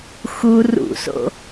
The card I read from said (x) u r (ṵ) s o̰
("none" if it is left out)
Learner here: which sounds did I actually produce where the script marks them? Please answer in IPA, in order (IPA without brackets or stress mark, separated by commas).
x, ṵ